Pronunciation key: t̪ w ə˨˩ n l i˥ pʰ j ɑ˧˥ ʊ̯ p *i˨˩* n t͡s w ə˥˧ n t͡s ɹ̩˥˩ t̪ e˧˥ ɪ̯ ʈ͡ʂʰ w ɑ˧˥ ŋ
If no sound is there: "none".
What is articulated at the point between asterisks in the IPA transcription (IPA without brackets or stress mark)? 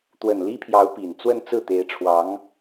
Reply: i˨˩